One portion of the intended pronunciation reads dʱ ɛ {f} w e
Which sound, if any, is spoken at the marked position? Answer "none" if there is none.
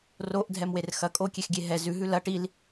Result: m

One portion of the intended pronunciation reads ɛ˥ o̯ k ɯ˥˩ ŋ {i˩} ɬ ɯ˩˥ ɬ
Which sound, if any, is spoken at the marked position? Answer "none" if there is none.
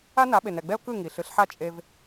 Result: i˩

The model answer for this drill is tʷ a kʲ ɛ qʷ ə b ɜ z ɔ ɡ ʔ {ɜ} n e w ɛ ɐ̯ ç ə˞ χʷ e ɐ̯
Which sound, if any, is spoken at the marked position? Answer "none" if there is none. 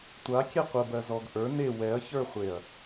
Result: ə˞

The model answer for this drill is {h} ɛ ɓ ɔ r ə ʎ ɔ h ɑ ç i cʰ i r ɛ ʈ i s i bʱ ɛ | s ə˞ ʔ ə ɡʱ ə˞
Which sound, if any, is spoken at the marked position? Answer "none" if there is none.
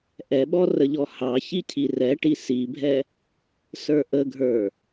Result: ʔ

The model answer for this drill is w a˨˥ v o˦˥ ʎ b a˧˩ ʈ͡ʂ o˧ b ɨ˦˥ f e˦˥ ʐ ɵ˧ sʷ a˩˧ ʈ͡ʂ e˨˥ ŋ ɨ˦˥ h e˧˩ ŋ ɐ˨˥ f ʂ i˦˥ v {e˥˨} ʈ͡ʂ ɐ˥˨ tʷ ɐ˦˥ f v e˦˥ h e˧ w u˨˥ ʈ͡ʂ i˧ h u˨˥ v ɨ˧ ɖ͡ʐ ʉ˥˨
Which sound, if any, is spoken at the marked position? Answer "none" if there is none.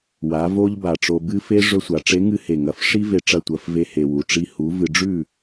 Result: e˧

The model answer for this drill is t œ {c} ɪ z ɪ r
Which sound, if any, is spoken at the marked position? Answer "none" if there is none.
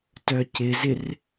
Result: c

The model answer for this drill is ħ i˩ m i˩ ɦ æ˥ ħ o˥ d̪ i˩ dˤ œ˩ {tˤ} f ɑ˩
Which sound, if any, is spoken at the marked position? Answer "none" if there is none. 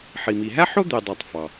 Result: tˤ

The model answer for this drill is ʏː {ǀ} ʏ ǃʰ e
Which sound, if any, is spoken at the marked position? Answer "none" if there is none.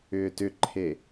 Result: t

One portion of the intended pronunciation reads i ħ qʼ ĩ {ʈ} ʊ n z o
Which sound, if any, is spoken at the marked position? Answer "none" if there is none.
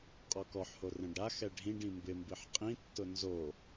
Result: tː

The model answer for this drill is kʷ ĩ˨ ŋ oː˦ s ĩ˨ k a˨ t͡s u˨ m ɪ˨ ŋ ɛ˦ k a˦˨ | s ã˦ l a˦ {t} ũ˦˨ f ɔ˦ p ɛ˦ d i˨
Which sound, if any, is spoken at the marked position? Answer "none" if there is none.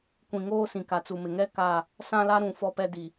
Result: ɾ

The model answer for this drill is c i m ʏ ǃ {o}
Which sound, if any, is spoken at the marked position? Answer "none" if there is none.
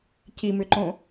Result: õ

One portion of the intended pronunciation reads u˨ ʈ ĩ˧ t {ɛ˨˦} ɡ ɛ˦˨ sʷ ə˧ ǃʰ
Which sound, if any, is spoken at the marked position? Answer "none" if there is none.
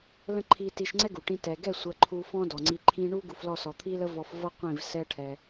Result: ɛ˨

